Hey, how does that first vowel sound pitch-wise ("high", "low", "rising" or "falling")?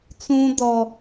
high